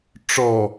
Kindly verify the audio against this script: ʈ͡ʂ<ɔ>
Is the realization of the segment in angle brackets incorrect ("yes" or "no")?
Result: no